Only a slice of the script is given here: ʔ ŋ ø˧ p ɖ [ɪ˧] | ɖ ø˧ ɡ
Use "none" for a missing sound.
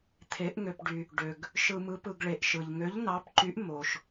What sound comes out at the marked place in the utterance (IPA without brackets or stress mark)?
y˧